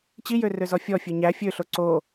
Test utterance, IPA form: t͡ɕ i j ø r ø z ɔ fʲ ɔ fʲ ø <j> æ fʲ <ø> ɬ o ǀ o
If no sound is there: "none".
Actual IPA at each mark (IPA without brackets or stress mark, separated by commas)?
ɲ, ø